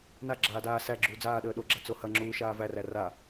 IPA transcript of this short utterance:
n a ɡ͡ǁ aː d aː s æ ɡ͡ǁ uː d͡z aː ɗ əː ɗ o ɡ͡ǁ a t͡s o h ɐ ŋ͡ǁ uː ʃ aː v æ r æ r a

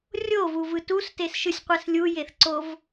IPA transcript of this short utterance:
rʲ o v u v ɯ t u s t e s ʃ ɯ sʲ qʷ ɛ s lʲ u j e θ ǀ o v

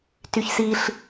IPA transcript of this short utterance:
t y ç s i ɬ

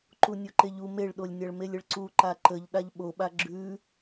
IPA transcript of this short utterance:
ǃ u nʲ o ǃ e ʎ u m e ɭ ɗ o lʲ nʲ a ɭ m e lʲ ə ɭ ǀ u ǃ a ǃ ə ʎ ɗ a ʎ ɓ o ɓ a ɡ͡ǁ ʉ

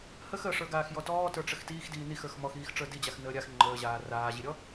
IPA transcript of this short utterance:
h ə x ə ʂ ə˞ ɡ aː x j ɔ t ɔː t ə˞ ʈ͡ʂ ə x t iː x d iː n i x ə˞ x m ɔ x iː x ʈ͡ʂ ə˞ d i d͡ʑ a x n əː ɾʲ a x ŋ͡ǃ əː ʑ aː r aː ʑ i ɾʲ ɔ

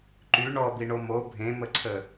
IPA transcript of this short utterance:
ǃ y ɳ ɔ b i ɳ o m o bʱ ẽ m ə ǀʰ ə

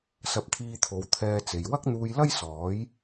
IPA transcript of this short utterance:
s ɐ˧ p̚ t̪ʰ iː˧ t̪ʰ o˨˧ w t̪ʰ ɛː˧ t͡s e˨ j w ɐ˥ k̚ n̪ uː˧ j l ɐ˥ j s ɔː˨˥ j

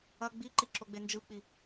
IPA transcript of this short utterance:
ɐ ɡ͡b i ǃ i ǁ o ɡ͡b e n d͡ʒ ɯ k͡p i

